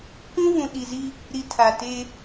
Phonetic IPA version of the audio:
kʷ ũ˦ v ũ˨ ɗ i˨ z i˦ | ɾ i˨ tʰ a˨ t e˦

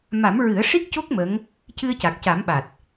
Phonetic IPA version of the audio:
m a˨˩˦ m ɹ ɨ˨˩˦ ə̯ ʂ i˦˥ k̚ c o˦˥ k̚ m ə˧˥ ŋ | c ɨ˧ ə̯ c a˨˩ k̚ c a˨˩˦ m ɓ a˨˩ t̚

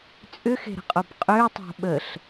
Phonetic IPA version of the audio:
t͡sʼ ʏ x e̤ ɾ ə̤ qʼ o b qʼ ø tˤ o̤ ɓ ə ɬ

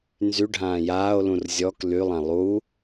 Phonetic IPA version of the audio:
n z y ɖʱ ãː j aː o̯ l ũ r zʲ ɔ k l y lˠ ã lˠ u

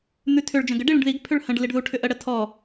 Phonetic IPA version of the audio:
n̪ ʉ tʰ ʏ ɭ d͡ʒ ə̃ ɡ ə ɖ i ɭ ĩ ɖ ð i ɡ pʰ ʏ ɭ h ə̃ ɖ l i ɖ ð u ʈʰ ʏ ʔ ə ɽ ə tʰ ɔ

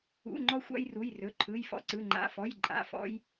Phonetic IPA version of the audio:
ṵ˩˧˩ ŋ͡ǃ ɔ˦ xʷ a̰˦ j r u˩˧˩ j r ɵ˩˧˩ ǃʰ ɯ˩˧˩ j f ɔ̰˦ ǀ ɯ˩˧˩ ŋ͡ǃ a̰˩˧˩ f ɔ˩˧˩ j ǃʼ a̰˩˧˩ f ɔ̰˦ j

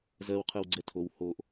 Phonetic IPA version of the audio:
z ɜ w qʰ ɯ w ɡ͡ǀ ɛ tʰ o w h o ʔ

